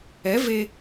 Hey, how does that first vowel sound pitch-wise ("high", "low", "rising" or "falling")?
rising